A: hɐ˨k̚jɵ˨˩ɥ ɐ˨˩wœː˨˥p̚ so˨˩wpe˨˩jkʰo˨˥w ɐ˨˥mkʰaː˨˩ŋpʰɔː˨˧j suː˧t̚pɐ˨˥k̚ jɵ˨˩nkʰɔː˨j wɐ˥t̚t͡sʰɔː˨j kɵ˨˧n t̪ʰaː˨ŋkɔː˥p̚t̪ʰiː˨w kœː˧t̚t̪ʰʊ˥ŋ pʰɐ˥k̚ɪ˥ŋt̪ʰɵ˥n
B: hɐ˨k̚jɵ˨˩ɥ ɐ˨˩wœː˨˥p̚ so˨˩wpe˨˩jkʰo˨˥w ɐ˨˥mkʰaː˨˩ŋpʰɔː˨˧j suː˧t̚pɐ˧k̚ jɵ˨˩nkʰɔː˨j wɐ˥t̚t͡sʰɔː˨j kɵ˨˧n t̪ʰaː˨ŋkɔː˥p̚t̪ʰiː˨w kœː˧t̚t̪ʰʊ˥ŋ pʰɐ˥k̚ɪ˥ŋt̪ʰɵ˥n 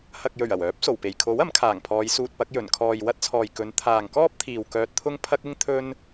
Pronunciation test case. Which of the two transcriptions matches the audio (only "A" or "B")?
A